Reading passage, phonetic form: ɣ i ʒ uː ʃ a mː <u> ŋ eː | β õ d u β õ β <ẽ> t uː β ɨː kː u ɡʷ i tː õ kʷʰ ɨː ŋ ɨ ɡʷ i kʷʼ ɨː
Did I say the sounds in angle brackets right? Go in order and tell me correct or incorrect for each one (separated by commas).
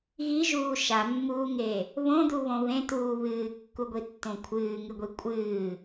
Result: incorrect, correct